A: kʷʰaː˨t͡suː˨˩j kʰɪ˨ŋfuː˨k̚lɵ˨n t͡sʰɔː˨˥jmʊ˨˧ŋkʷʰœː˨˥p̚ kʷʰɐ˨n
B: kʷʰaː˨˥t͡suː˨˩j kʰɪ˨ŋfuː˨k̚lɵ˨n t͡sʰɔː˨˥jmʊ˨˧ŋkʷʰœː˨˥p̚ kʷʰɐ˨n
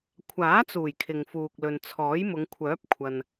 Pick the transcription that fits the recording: B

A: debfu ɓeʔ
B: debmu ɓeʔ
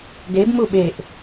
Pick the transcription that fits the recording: B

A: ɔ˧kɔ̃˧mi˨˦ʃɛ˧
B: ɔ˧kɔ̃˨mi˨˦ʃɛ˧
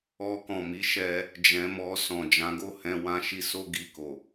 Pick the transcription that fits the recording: B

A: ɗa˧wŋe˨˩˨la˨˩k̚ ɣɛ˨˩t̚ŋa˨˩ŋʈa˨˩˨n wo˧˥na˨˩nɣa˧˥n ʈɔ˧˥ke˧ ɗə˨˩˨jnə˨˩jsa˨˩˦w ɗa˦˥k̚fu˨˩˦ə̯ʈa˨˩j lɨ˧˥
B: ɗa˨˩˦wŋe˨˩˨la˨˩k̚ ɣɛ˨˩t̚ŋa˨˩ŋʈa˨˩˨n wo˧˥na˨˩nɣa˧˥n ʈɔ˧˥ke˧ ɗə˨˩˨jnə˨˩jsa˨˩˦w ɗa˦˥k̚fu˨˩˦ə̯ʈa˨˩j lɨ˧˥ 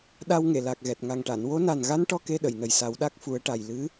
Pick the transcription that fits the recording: A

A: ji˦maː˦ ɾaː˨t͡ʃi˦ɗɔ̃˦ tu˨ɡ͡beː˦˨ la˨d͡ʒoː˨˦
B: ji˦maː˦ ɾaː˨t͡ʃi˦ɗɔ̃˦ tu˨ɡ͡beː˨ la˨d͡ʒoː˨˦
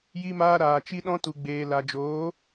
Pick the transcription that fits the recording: B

